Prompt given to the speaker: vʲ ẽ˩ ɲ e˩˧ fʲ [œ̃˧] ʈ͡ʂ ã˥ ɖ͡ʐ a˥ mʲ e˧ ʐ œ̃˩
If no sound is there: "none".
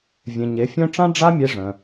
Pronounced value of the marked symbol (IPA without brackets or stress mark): œ̃˧